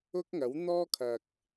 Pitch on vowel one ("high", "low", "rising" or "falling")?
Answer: high